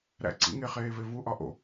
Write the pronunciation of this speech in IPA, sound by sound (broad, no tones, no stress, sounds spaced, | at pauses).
ɾ æ̰ ǀ ḭ ŋ e χ eː v e v u ʔ ɒ ʔ o̰